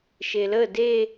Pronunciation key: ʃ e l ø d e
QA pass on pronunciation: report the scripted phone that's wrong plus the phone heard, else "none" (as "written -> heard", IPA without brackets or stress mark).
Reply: ø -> ə